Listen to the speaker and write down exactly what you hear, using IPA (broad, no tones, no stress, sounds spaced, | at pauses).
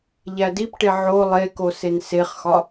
ʎ æ d i p ʈ e ʕ o lˠ e k o s e n s e χ x ɒ